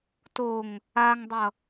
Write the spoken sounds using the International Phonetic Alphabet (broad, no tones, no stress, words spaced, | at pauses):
toŋ | aŋdˤʌ